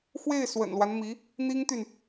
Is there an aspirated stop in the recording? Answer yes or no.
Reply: no